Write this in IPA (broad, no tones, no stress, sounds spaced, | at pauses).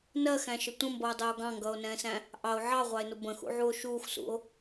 n ɜ x æ̃ ʃ ə tʷ ə̃ m b ʌ o̯ dˤ ɛ o̯ ɡ ɑ̃ ŋ ɡ ʌː o̯ n ɛ̃ː s æ̃ | ʔ ɑ o̯ ʕ ɑ ʁʷ ɑ e̯ n ʊ b ə̃ x ṵ ʕ u o̯ ʃ uː x s ṵ o̯